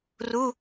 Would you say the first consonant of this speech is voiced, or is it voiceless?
voiced